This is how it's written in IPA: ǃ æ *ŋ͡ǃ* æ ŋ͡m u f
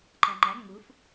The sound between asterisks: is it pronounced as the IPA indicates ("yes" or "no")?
yes